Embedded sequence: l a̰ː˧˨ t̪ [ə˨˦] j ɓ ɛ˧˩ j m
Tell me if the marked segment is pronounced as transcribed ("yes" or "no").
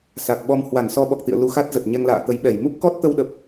yes